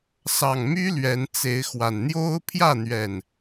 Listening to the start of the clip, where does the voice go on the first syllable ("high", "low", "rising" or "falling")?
low